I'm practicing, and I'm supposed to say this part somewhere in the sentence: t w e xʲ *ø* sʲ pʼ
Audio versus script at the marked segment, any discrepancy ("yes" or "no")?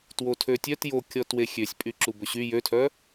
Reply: no